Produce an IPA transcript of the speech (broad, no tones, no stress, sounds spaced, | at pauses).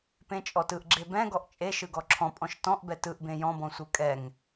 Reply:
p ẽ t͡ʃʼ ɔ t ɯ ʔ ɡ͡ǁ e b ɛ̃ ɡ ɔ ʔ t͡ʃʼ e ʃ ɯ ɡ ɔ ǁʰ ɔ̃ pʼ ɔ̃ ʃ t ɔ̃ ʔ b ɛ t ɯ ʔ b ẽ j ɔ̃ b ɔ̃ sʷ ɯ kʼ ɛ ŋ